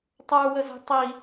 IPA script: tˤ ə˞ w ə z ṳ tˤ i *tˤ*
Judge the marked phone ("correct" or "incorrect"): incorrect